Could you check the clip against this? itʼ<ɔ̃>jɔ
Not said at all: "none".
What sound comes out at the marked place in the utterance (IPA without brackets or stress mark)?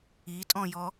ɔ̃